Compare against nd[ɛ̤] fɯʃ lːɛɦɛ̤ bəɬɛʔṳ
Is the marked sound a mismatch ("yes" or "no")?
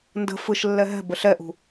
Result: yes